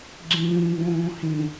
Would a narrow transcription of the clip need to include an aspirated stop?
no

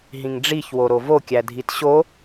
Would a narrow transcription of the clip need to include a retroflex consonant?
yes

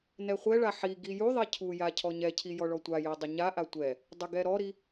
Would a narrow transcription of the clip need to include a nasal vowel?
no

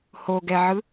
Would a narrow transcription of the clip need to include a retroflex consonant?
no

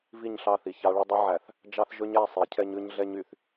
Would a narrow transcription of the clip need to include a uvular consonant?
no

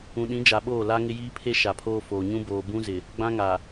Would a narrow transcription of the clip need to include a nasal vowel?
yes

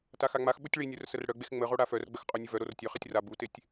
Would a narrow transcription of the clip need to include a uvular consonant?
yes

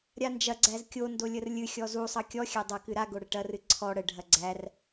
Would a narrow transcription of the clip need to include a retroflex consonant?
yes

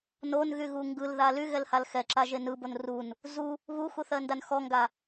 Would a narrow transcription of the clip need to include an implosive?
no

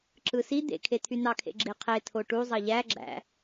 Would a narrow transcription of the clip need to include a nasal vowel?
no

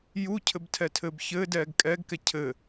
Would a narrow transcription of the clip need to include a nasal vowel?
no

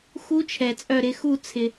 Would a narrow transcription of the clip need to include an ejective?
yes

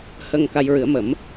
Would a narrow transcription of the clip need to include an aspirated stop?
no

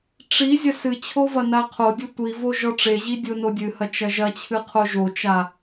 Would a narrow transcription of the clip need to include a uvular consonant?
yes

